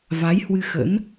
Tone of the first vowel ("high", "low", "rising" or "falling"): rising